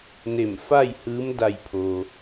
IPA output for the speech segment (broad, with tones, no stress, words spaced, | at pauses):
ne˧˩mfa˥˨jhɯː˧˥m da˧˩jpʰoː˩